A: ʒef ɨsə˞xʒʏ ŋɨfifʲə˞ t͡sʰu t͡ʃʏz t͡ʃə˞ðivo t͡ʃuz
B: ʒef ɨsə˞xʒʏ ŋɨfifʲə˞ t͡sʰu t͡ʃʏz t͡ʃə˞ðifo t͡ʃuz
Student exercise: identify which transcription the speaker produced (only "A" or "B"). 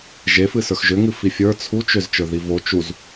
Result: A